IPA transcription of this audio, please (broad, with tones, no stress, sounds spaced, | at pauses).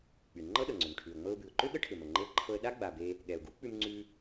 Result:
k͡p y˩ ŋ͡ǃ ɤ˥ ɗ ɤ˩ ŋ͡ǀ ʏ˩ m ʈʰ ʉ˩ ə̯ ŋ͡m ɤ˧ ʊ̯ b ʉ˩ ʊ̯ ǃ ʏ˥ ɠ ə˥ ʈʰ ʏ˩ m ə˩ ŋ͡ǃ e˧ ə̯ ǃʰ ɤ˧ ə̯ ɗ a˥ ɡ͡b a˩ b e˧ | ɠ ɛ˩ ʊ̯ ɡ u˥ k͡p ʉ˧ m ŋ͡ǀ ʉ˧